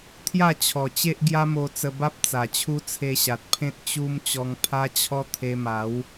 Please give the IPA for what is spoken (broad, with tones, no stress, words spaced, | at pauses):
t̪ʰja˥˧t͡ɕʰɔ˨˩t͡ɕe˦ʔ ɡja˦mo˧t͡sə˧ba˦p̚ t͡sa˨˩t͡ɕʰu˦ t͡sʰe˧ɕa˨t̚pʰẽ˦t̚ t͡ɕu˧m t͡ɕɔ˧ŋpʰa˦t͡ɕʰɔ˦ t̪ʰe˧ma˨˦w